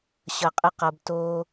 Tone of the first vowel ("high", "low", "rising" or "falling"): low